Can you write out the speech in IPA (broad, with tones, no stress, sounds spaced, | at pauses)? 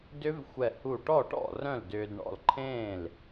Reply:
d ʏ˦˥ v xʷ ɛ˧˩ h u˧˩ ʈ ɔ˥˩ ʈ ɔ̰˥˩ r œ̃˥˩ l d ʏː˧ d ɳ ɔ̰˥˩ l ǃʰ ẽː˥˩ l